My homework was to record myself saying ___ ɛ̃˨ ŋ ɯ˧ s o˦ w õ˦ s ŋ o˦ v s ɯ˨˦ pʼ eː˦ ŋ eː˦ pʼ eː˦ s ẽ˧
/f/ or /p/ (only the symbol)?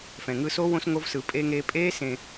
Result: f